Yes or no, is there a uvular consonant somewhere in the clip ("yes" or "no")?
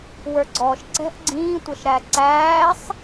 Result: no